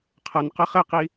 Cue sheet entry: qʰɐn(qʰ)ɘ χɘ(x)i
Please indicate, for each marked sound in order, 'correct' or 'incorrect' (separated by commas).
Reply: incorrect, incorrect